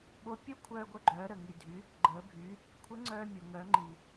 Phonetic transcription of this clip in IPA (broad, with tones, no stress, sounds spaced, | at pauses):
ɓ o˧˥ pʲ o˥ kʷʰ œː˧ ɡʷ œ˧ ɡ͡ǃ œː˩˧ ɾ ə˩ ŋ i˩ dʱ y˩˧ | ɡ͡ǃ əː˩˧ bʱ y˩˧ | kʷʰ ə˧˥ ŋ͡ǀ œː˧ mʲ o˩ ŋ œː˩˧ ŋ͡ǃ i˩